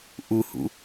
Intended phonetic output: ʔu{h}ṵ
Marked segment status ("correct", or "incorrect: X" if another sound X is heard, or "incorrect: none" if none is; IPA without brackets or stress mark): correct